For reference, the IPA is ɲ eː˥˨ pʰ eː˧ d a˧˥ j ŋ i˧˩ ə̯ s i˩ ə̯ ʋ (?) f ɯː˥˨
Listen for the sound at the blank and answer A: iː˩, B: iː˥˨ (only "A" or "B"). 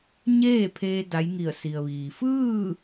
A